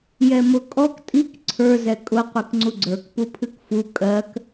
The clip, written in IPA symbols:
j ɛ m ʊ kʼ ɔ k tʼ i k ǀʰ ə˞ z ɛ kʼ ʊ qʷ i k ŋ͡ǀ u ɡ͡ǀ ə˞ k p u pʰ ɨ k f u kʼ ɜ k

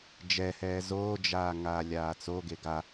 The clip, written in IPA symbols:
d͡ʒ ɛ h ɛː z oː d͡ʒ aː ŋ aː lʲ aː t͡s o ɡ e ɡ a

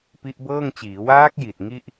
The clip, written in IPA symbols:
p i˦˥ ʔ b ɤː˥˩ ŋ t͡ɕ iː˩˦ w aː˦˥ k̚ j i˨˩ t̚ ŋ i˥˩ ʔ

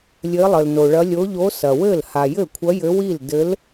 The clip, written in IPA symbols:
lʲ ɘ˧˥ lˠ ɘ˨ l n o˨ ɭ ɐ˧˥ lʲ o˧˥ ʎ o˧˥ s ɐ˨ w ɘ˥˩ l h a˨ j ɘ˥˩ kʷʰ ɐ˧˥ j ɘ˧˥ w i˥˩ l d ɘ˧˥ l

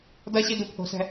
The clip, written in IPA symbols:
d ʌ ɕ i d u pʰ o̤ s ɛ̤

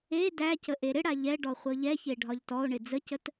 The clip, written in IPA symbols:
e d æ c ə ʔ e ɾ ɪ ɽ a ʎ ɛ ɖ ɔ χʷ ɤ ʎ ɛ ç e ɖʱ ɒ ʎ t ɔ o̯ ɳ ɪ d͡z ə c ə t

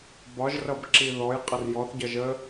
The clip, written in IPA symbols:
b ɒ ʒ r ʌ b ǁ i ð ɔ j qʼ ʌ r j ɔ θ ɟ ʌ ʒ ə

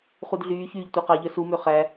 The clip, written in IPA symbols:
χ u d ɮ yː ç yː ʎ tʷ æ q ɑ ʎ œ s u m ø χ æ

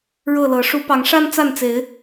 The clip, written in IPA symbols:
ɻ ɤ˥˨ l ɤ˨˦ ʂ u˨˦ p ɑ˨˦ ŋ ʂ a˦ n t͡s a˥˨ n t͡s e˨˦ ɪ̯

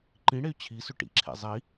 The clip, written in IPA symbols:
ǃ ĩ ɽ e y̯ t͡ɕʰ i s ʏ ʈ ḭ ǁʰ ḛ zˤ i

